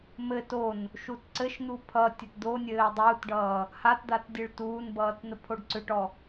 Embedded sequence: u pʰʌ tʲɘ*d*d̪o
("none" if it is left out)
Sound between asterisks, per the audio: t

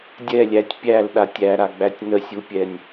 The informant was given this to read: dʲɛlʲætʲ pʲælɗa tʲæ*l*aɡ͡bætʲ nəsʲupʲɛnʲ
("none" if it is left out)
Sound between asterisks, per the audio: ɾ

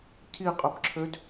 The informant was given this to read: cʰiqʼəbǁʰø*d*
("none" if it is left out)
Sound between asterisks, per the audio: d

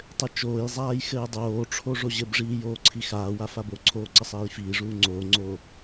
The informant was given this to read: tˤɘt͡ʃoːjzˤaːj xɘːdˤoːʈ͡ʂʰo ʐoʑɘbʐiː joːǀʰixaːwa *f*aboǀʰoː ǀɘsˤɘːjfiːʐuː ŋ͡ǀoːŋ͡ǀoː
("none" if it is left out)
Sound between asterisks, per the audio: f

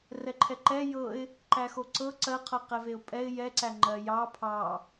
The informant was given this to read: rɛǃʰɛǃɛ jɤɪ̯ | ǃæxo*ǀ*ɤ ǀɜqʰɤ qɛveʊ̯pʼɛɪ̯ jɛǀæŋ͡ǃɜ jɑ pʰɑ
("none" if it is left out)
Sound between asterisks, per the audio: ǀ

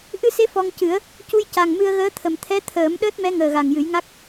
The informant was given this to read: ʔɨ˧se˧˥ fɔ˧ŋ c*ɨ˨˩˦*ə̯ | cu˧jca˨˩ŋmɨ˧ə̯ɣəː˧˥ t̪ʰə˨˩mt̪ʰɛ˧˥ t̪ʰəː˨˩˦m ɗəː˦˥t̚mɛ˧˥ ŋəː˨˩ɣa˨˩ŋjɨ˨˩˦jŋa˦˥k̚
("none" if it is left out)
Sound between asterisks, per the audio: ɨ˨˩˦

